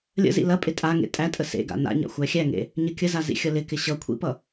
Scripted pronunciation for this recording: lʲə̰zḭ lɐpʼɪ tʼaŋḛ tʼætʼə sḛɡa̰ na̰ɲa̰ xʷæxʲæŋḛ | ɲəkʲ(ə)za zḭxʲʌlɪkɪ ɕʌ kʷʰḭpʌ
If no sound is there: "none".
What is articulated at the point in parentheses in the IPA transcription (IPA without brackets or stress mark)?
ə